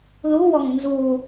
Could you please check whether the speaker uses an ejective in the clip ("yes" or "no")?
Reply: no